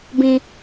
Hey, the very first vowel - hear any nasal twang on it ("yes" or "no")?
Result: yes